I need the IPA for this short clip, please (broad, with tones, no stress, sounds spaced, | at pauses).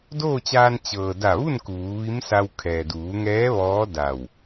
d oː˥˨ t͡ɕ aː˧ n t͡ɕ ɤː˩ d a˧˩ ʋ u˥˨ n k uː˩˧ ʋ i˧˥ m s a˧ w kʰ ɛː˩ d uː˩˧ ŋ ɛː˧˥ ʋ ɔː˧˥ d a˧˩ w